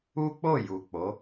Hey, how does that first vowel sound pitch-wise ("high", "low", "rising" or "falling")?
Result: high